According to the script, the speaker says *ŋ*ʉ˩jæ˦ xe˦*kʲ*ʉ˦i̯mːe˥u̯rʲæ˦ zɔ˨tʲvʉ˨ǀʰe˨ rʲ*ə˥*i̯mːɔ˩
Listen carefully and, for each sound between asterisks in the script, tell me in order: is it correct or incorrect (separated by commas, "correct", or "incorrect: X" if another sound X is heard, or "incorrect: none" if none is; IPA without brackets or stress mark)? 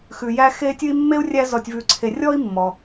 incorrect: x, incorrect: tʲ, incorrect: ɔ˥